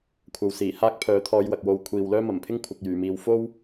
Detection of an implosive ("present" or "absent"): absent